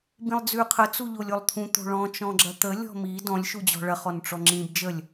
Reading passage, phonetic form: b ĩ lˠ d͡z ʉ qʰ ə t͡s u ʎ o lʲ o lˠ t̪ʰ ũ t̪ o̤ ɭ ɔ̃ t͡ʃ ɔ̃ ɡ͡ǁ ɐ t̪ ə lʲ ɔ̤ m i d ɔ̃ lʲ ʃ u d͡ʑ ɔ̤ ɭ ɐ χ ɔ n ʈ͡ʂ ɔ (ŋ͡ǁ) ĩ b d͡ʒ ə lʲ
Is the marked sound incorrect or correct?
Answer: correct